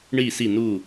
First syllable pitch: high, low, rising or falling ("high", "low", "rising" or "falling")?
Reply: falling